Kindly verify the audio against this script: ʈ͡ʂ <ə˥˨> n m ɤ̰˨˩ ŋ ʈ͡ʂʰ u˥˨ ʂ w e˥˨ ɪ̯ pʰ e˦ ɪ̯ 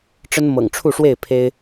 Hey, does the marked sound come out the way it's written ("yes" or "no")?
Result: no